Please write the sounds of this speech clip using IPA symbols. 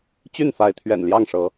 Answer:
t͡ɕy˥˨nfa˨˦ɪ̯ t̪ʰɥɛ̰˨˩nljɑ˥˨ŋʂɤ˨˦

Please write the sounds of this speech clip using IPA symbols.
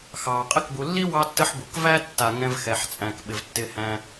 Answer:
xɑː˩qʼɪ˦kbu˨lːi˥ wɑ˥tːə˥ħbu˩k væ˥ tːa˨ ŋɛ̃˨vxɛ˩ħt͡sʼæ̃˩k ɓɪ˩vtːɪ˨hæ̃˨

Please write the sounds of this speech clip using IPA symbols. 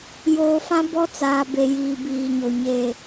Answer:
joː˨fã˦ bɔ˦t͡saː˨ be˨ jiː˨biː˨ɲo˨ ɲe˨

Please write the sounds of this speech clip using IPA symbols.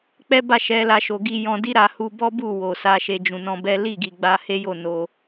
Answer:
k͡pɛ˦ba˦˨ ʃɛ˨˦la˧ʃo˨ ɡi˧jɔ̃˧ di˦ɾa˧ hu˧bɔ˦bu˦˨ wo˨sa˨˦ʃe˧ d͡ʒũ˨nɔ̃˧bɛ˦ li˦˨ɡi˨ɡ͡ba˧ he˦jo˦˨ no˧

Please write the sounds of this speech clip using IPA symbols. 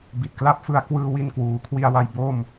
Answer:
bi˨˩t̚kla˥˩p̚ fɯ˧a̯kwɯː˧ wi˧nkwuː˩˦kʰwi˧a̯wa˧j bo˥˩m

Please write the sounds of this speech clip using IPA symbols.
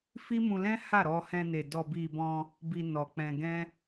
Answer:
fi˦mũ˧lɛ̃˦ ha˦˨ɾɔ˧hɛ̃˧ne˨ dɔ˨bi˨ bɔ̃˧ | bi˧nɔ˨k͡pɛ̃˧ ɡɛ̃˦

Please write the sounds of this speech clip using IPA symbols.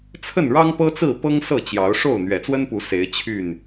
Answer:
t͡sʰə˥˨nɻɑ˦ŋpɤ˦t͡sɹ̩˥˨ pɤ˦ŋsɤ˥˨t͡ɕjɑ˨˦ʊ̯ʂo˥˨ʊ̯ n̪ɥɛ˨˩t͡swə˦npu˨˦ se˨˦ɪ̯t͡ɕʰy˥˨n

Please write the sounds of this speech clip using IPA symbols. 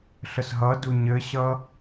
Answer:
ɬəsɦʌdu ɲɘɕʌ

